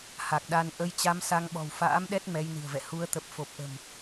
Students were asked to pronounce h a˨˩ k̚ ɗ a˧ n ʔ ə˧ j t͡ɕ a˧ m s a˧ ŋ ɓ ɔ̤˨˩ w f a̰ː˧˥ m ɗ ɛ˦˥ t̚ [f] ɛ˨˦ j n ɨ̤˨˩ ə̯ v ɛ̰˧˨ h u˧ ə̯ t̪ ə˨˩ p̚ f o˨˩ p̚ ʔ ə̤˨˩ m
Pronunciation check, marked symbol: incorrect: m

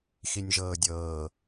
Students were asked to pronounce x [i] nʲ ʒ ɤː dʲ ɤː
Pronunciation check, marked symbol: correct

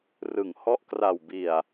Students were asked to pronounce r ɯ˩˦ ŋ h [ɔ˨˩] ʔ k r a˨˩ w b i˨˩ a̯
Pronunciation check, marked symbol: incorrect: ɔ˦˥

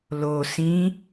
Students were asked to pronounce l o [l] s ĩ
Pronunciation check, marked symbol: incorrect: none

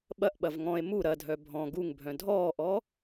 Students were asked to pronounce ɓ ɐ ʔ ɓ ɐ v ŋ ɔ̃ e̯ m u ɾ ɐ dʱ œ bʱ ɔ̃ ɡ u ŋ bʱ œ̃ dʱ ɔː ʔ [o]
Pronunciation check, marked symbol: incorrect: ɔ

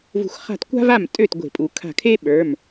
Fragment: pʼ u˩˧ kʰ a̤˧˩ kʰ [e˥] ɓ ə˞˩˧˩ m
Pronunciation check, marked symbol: correct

